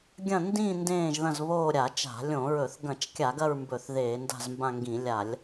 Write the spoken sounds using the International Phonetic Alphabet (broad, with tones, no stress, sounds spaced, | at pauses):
ɡʲ ɐ̃˦˨ n d ĩ˦˨ n d ẽː˦˨ ʒ ð ɐ̃˦˨ z β oː˦˨ ɾʲ a˧˩˧ t͡ʃ a̤˧˩˧ lʲ õ˧˩˧ ɹ ɵ˧˩˧ θ ɡ ɐ̃˧˩˧ t͡ʃ kʲ a˧˩˧ ɡ ɐ˦˨ ɹ m b ɵ˧˩˧ θ ð eː˧˩˧ n d a̤˦˨ z m b ã˦˨ ŋ ɡ ĩ˧˩˧ lʲ a˧˩˧ lʲ